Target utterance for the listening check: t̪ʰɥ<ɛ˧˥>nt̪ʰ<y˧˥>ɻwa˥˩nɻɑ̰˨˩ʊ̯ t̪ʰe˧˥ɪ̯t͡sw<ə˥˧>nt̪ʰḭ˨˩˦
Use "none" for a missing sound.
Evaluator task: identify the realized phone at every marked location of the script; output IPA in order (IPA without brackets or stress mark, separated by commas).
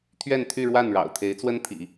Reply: ɛ˥˧, y˥˧, ə˥